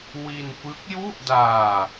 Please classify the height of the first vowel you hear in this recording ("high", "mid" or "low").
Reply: high